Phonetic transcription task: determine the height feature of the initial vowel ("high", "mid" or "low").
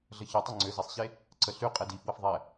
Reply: mid